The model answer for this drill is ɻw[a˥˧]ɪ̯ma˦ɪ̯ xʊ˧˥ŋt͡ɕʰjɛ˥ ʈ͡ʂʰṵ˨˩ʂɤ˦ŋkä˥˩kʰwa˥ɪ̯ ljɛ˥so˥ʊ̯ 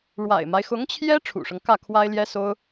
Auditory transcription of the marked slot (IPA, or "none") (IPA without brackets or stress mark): a̰˨˩